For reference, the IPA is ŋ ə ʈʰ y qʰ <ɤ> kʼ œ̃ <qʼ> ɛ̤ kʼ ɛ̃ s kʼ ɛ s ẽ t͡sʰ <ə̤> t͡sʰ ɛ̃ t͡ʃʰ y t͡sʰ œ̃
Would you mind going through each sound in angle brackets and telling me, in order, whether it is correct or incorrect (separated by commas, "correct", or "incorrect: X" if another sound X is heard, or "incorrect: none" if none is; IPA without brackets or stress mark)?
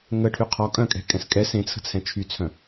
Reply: incorrect: ɔ, incorrect: kʼ, correct